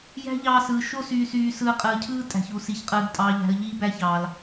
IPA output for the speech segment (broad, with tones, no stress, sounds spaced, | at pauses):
j æ̤˦ ʎ ɑː˧ s ɯː˨ ʃ o˦ s yː˧ s yː˧ s ɯː˧ qʼ ɯː˨ cʰ ɯː˦ tʼ æ̤˨ ç u˨ s i˨ ç qʼ ɯː˨ ɡ tʼ ɑː˨ ʎ æ̤˨ ə̯ ʎ iː˦ b æ˦ ç ɑː˨ l